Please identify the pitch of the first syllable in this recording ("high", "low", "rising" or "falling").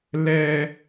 high